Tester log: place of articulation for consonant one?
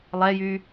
alveolar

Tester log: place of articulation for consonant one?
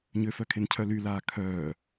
palatal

